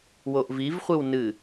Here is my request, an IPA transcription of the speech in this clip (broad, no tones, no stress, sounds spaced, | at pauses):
w o ʔ v i v χʷ ɨ w n ɨ